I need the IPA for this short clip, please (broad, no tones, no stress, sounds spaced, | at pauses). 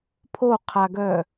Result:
pʰ o qʰ a ɡ œ